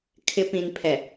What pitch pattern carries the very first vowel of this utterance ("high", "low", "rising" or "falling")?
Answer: low